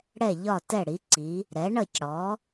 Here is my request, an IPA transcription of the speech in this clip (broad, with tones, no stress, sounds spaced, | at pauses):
ɽ ɛ˧˩ ʎ ɒ˧˩ t ɛ˧˩ ɽ i˩˧ ǀ i˩˧ | ɾ ɛ˩˧ ɳ ʌ˧˩ c ɽ ɔ˩˧